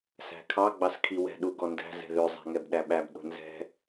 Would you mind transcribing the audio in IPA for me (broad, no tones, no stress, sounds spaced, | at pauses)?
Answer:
s æ̤ kʰ ɑ ɡ͡b ɑ s kʰ i w ɛ̤ ɗ u ɡ ɔ n d æ̤ z ɛ̤ ð ø zˤ æ̤ ŋ ɛ b ɗ æ ɓ æ b ɗ o̤ n z ɛ̤